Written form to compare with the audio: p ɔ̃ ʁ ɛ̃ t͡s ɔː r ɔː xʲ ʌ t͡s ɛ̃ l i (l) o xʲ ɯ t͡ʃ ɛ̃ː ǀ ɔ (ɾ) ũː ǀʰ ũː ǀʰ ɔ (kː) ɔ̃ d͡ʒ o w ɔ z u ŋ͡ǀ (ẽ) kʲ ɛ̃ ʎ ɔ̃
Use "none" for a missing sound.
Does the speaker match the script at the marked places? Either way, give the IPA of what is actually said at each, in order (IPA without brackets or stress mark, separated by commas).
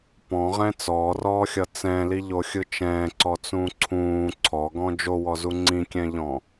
ʎ, t͡s, ɡ, ĩ